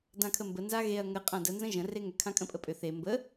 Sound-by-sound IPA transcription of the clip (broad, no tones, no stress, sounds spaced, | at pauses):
d ã kʰ ə m b ə n z a ɣ e ɐ̯ ŋ ə qʼ ã d ə n z ə̃ ʒ ə̃ r e ŋ ʏ kʰ ã kʼ ə̃ pʼ ə pʼ ʏ θ e m b ə